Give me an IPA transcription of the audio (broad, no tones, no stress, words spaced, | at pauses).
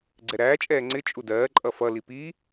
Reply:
ɡ͡ǀɛɾæːt͡ʃʼɛː ŋ͡ǀɪ t͡ʃʼudɜːǃʼʌ fʌli pi